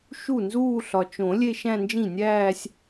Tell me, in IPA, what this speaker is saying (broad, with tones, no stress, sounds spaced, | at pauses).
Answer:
ʃ u˥˩ n z uː˥˧ ɬ ɒ˨ t͡ʃ õ˨˩˦ lʲ e˥˧ ʃ æ̃˥˧ n d͡ʒ ĩ˥˩ nʲ æː˥˧ sʲ